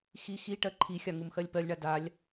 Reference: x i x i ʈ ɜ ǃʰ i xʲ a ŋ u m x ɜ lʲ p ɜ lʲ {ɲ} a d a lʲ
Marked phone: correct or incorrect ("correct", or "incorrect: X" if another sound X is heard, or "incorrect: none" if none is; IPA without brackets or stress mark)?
incorrect: ɳ